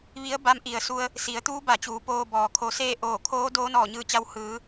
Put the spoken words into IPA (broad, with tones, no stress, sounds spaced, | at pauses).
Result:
ʋ i˧˥ ə̯ b a˧˥ m ʔ i˩ ə̯ s u˧ ə̯ | s i˩˧ ə̯ t̪ uː˧˥ b a˧˩ t͡ɕ uː˩˧ p oː˧ b ɔː˩ kʰ o˧ s eː˥˨ ʔ oː˧˩ kʰ oː˧˥ d oː˧˥ n ɔː˧˩ ɲ ɯː˧˩ t͡ɕ a˧ w h ɯː˩˧